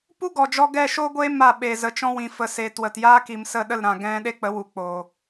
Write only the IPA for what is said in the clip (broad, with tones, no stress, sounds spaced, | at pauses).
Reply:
p u˦ ɡ ɔ˨ d͡ʒ ɔ˧ ɡ ɛ˦˨ ʃ o˦ ɡʷ eː˦ m a˦˨ ɓ e˨ z ə˨ t͡ʃ ɔ̃˧ w ĩ˨ f ə˨ s eː˨ t w ə˨ t j aː˦ k i˨ m s ə˦˨ ɗ ə˦˨ l ɾ ã˨ ɡ ɛ̃˦ ɗ e˦ k͡p ə˨˦ w u˨ k͡p oː˨